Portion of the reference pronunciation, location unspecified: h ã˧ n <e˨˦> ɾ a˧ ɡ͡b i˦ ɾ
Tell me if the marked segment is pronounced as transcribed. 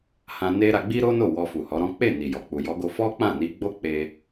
no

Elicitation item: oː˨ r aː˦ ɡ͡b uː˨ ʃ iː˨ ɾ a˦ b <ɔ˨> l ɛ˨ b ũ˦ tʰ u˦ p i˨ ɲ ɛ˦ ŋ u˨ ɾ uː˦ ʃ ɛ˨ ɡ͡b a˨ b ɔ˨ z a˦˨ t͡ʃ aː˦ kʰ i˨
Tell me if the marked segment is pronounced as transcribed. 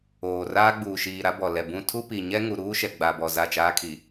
yes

